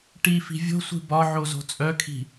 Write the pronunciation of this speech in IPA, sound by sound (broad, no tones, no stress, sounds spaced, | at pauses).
ʈ i f i̤ vʲ o̤ sʷ i̤ b ɒ ʕ o z o̤ t͡sʼ œ kʰ i̤